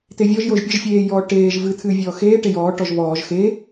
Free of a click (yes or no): yes